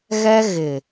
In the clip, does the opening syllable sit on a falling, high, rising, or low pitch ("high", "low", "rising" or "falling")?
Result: high